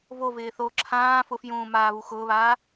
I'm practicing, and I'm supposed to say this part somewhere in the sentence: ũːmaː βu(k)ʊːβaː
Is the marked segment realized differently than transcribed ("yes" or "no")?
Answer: yes